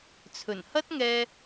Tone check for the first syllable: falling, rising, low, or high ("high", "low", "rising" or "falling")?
low